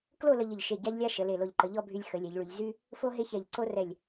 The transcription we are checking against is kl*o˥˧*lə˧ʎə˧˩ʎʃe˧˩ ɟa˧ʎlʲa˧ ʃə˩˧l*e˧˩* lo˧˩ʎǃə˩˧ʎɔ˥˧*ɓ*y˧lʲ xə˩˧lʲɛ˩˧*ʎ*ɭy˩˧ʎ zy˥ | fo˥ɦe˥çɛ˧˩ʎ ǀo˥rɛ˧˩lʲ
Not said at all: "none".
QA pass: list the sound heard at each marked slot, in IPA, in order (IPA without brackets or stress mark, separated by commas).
o˥˧, e˧˩, bʱ, ʎ